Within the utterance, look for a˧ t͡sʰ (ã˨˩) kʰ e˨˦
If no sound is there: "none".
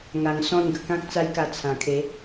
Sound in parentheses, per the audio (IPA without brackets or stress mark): ã˨˩